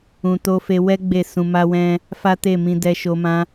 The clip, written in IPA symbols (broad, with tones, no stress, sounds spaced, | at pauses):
ũ˧ t o˦ f e˦ w ɛ˦ ɡ͡b e˦˨ s ũ˧ m a˦ w ɛ̃˦ | f a˦ t e˦˨ m ĩ˧ d ɛ˧ ʃ o˧ m ã˦